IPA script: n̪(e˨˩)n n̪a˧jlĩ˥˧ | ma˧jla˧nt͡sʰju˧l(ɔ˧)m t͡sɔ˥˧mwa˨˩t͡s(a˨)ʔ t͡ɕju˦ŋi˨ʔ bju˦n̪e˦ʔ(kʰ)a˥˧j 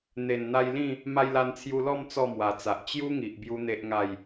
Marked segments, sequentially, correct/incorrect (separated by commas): correct, incorrect, correct, incorrect